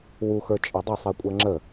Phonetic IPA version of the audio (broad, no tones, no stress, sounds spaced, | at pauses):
w u x ə˞ t͡ʃʼ ɤ dˤ ə sˤ i kʷʼ ɜ ŋ͡ǁ ə